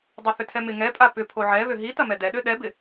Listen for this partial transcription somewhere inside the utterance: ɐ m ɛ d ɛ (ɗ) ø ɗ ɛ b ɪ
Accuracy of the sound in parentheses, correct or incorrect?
correct